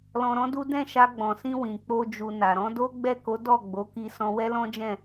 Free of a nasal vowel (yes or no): no